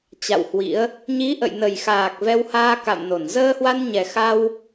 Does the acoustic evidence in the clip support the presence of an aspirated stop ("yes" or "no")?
no